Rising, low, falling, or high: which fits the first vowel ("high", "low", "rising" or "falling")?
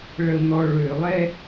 low